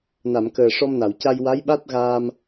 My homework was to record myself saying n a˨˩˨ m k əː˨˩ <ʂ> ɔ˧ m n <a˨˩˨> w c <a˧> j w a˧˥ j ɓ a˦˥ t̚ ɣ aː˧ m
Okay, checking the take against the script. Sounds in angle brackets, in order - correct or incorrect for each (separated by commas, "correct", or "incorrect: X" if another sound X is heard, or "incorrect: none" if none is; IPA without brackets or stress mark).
correct, correct, correct